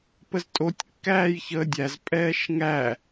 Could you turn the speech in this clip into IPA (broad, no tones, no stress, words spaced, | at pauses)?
pəztʼotʲ kːæːjçəːdʲæz pʼɛːʃŋæ